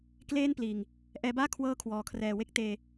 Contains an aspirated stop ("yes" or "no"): yes